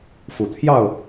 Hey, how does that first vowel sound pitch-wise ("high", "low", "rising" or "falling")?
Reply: low